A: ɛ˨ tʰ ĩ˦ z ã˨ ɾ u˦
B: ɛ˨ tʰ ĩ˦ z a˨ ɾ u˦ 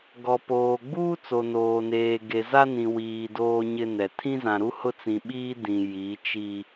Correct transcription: A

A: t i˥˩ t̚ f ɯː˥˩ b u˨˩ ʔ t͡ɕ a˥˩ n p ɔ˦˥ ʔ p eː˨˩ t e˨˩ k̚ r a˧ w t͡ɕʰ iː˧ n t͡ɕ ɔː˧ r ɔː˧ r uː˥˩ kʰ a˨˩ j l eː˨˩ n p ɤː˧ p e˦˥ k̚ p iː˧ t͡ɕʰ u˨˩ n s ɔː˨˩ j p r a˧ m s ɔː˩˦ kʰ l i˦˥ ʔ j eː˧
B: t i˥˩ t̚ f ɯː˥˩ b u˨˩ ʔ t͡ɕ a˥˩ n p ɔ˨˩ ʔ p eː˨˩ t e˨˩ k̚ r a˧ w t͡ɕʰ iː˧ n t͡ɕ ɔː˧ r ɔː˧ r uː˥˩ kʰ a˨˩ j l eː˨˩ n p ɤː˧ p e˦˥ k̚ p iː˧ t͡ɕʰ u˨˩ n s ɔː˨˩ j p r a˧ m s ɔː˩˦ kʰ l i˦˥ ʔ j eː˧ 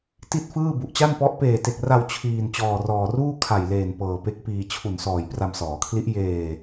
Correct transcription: A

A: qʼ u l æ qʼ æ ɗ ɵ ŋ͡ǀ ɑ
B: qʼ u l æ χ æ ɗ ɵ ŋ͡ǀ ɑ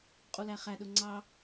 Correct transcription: B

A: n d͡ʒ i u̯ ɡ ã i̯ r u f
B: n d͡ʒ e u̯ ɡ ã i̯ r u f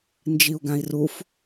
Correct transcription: A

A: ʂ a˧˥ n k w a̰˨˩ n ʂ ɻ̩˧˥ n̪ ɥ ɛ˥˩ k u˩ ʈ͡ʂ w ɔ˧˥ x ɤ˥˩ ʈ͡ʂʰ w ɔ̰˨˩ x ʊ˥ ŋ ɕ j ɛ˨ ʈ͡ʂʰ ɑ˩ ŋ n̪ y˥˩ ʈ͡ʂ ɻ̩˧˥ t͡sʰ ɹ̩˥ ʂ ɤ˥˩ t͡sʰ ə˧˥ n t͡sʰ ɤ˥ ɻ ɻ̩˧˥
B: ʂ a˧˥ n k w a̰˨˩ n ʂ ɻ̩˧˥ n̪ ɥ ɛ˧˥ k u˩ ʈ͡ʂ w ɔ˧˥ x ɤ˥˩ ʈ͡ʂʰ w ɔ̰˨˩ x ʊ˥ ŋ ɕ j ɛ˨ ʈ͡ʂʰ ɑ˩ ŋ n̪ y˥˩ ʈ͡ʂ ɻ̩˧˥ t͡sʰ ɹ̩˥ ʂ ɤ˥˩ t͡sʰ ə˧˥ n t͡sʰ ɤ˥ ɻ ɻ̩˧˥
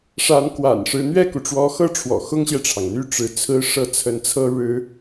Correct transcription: A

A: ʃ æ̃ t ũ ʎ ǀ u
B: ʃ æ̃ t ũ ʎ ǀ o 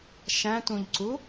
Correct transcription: A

